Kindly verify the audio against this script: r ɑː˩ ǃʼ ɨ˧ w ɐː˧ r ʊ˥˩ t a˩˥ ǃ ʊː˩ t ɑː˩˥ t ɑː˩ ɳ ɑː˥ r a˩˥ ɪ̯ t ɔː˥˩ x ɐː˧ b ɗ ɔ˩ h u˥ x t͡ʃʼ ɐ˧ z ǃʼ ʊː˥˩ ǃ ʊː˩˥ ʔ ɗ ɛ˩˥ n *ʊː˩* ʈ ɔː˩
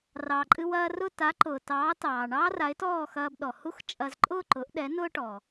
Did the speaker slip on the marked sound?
yes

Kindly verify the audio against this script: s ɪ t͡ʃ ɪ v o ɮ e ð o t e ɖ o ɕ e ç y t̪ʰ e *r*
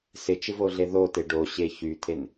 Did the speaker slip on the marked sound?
yes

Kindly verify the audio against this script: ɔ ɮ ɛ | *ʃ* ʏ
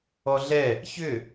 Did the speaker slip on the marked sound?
yes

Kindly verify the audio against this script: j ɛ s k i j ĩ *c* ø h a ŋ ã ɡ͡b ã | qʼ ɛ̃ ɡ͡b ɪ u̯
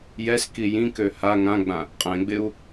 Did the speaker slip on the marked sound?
yes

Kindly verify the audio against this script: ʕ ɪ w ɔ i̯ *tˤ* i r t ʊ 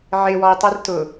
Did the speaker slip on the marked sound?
no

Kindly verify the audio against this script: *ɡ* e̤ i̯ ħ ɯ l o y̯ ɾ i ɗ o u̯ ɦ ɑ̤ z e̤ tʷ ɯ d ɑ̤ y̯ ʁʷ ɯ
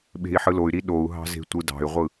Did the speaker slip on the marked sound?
yes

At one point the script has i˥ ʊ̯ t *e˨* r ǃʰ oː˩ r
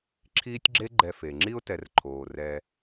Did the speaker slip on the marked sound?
yes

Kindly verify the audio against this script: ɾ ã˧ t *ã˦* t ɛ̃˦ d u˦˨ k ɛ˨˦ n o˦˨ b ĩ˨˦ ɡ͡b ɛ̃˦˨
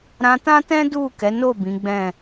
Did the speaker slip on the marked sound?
no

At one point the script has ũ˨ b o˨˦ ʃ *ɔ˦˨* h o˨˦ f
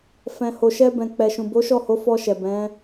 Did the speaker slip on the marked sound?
no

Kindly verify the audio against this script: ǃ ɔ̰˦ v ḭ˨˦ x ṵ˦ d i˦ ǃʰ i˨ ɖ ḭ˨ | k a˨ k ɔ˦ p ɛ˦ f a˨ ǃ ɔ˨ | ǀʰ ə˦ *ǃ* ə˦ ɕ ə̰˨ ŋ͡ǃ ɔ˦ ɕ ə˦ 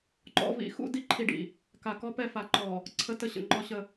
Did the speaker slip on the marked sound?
yes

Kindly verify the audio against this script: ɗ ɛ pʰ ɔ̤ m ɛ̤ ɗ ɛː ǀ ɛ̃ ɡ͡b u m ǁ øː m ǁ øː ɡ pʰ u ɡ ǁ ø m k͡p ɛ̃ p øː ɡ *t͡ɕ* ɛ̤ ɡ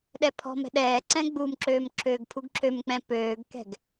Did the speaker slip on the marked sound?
yes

